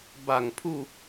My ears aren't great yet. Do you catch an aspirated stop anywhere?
yes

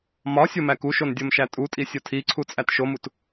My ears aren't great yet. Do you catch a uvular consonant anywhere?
no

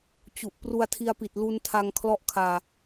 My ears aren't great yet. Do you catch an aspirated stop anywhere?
yes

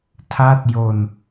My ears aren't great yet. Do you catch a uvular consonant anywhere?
no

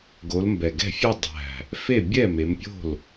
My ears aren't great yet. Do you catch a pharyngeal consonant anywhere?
no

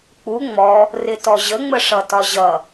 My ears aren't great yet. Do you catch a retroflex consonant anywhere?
yes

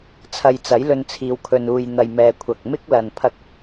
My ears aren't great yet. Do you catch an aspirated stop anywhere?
yes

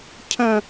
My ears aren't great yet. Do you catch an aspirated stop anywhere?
yes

